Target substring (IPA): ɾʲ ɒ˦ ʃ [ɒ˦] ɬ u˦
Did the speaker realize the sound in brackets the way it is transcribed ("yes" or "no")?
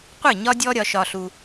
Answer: yes